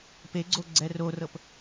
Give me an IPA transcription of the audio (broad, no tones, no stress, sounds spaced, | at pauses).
p e ɡ͡ǀ o ɡ͡ǀ ɛ r o r ɤ p